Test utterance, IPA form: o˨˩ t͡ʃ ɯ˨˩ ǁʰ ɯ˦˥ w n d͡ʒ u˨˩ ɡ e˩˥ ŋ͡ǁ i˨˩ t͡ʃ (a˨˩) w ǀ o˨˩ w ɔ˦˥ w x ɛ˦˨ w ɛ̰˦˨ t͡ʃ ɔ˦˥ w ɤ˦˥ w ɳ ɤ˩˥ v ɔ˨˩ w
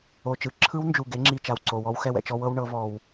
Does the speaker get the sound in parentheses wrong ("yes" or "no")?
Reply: no